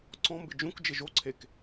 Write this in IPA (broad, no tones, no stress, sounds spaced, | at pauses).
ǀ ɔ̃ m b ɪ d͡ʒ ũ k d͡ʒ ɪ ʒ o ǀʰ e k